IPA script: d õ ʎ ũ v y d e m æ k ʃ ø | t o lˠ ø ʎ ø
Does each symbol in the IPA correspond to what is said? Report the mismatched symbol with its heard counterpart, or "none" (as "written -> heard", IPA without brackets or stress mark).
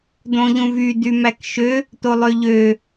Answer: e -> y